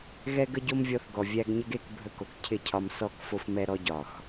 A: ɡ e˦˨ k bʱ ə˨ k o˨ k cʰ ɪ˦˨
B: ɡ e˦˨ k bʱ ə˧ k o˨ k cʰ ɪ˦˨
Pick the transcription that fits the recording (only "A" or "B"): B